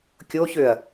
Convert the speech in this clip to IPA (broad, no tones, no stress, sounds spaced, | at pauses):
kʲ o ç ø ɐ̯